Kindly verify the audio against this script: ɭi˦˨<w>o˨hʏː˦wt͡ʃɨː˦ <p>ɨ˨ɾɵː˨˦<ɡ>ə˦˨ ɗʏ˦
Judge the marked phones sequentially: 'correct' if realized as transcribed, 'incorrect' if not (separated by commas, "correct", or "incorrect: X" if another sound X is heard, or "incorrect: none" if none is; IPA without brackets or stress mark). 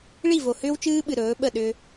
incorrect: v, incorrect: ɓ, incorrect: ɓ